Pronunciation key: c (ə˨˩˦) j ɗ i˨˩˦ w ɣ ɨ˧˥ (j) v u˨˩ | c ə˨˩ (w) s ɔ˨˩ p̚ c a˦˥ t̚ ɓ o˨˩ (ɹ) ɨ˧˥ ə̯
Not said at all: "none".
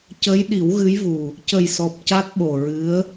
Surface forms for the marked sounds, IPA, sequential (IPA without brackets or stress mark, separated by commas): ə˧˥, j, j, ɹ